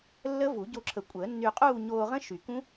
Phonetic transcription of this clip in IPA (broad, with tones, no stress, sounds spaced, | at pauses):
lː ə˦˥ v u˨˩˦ ɟ o˧ ǁʰ ə˨˩˦ kʷʼ əː˨˩˦ nː y˧ qʼ uː˥˧ ɲ oː˧ ʁ ə̃˦˥ ʃ y˨˩˦ k ũ˦˥